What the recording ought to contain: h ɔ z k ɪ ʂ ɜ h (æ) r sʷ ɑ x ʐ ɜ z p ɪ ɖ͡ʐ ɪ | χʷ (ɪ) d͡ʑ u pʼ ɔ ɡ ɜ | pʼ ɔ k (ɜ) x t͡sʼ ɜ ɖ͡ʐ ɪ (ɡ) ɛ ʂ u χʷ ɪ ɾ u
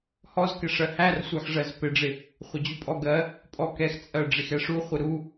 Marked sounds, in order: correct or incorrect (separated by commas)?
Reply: correct, correct, incorrect, incorrect